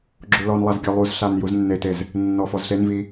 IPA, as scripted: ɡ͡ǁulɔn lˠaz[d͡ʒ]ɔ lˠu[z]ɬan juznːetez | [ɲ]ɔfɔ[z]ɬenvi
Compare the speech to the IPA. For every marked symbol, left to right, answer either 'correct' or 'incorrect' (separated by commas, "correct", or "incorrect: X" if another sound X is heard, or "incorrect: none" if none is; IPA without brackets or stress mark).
incorrect: ɡʲ, correct, incorrect: nː, correct